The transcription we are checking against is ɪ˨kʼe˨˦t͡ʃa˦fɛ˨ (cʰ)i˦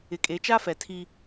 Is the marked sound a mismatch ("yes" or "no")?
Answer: yes